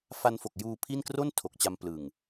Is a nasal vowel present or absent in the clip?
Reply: absent